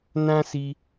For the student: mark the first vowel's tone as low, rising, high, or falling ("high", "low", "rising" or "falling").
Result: high